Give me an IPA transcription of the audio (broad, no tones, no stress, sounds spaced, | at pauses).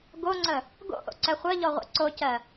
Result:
ɡ o ŋ͡ǀ ə | ɡ o̰ ʔ o̰ ǀ ɛ χʷ ɜ ʎ ɔ ʁʷ ɛ̰ ǀ o c ɜ